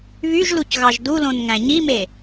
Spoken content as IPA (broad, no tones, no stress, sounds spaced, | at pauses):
β y ʒ l u c ɣ ɑ ʒ d u l õ n ŋ æ̃ ɲ i m e